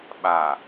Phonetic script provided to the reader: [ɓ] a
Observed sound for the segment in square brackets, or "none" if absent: ɓ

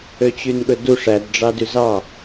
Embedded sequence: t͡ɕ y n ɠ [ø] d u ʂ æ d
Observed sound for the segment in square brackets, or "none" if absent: ɵ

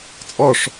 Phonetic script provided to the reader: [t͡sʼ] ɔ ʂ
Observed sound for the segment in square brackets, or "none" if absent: t͡sʼ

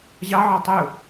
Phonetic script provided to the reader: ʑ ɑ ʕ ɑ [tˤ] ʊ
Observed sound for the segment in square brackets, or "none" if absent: tˤ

